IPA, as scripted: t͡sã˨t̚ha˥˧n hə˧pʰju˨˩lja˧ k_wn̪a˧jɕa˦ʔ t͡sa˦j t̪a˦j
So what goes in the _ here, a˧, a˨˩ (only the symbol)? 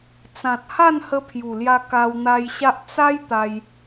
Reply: a˧